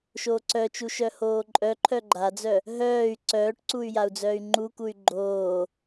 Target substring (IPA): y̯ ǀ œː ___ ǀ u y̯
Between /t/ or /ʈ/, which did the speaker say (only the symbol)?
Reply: ʈ